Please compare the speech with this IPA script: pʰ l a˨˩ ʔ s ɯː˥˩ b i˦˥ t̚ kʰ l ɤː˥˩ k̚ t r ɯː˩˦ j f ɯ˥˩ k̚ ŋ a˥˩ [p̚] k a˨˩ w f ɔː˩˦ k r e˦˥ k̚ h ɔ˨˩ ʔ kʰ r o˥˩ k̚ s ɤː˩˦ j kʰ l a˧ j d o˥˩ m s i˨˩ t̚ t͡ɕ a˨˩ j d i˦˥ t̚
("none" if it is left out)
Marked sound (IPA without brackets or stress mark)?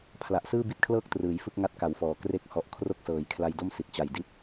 t̚